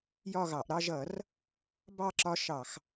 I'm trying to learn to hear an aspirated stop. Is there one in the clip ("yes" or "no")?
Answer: no